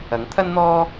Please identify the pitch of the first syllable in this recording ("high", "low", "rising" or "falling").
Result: rising